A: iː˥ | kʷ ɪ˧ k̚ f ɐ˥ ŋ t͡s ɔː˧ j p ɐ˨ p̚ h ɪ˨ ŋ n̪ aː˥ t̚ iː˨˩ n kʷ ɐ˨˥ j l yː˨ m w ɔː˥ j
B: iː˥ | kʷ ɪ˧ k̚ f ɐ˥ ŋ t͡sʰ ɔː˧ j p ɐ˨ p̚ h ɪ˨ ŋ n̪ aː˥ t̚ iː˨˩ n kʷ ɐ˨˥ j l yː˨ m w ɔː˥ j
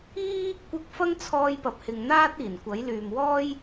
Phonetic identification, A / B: B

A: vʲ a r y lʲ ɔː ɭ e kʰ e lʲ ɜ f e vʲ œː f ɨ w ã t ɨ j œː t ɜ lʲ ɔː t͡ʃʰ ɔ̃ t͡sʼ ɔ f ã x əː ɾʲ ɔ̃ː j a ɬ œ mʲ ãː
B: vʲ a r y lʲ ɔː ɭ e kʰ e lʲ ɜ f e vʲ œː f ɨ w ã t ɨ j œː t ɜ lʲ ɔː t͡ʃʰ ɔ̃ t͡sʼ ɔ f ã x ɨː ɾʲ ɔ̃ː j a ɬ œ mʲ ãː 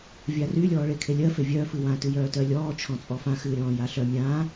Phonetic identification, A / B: B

